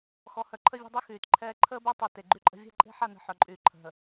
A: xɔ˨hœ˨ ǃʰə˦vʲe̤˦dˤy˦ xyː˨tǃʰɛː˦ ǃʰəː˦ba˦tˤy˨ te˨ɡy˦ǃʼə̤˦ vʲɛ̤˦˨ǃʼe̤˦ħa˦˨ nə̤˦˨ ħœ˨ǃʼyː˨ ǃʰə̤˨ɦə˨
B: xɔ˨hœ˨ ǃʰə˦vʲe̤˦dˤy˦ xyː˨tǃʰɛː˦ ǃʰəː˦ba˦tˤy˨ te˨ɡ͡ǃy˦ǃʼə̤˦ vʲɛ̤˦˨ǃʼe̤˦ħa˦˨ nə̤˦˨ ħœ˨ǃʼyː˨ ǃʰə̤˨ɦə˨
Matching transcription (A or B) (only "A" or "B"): B